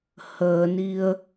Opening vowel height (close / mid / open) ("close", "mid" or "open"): mid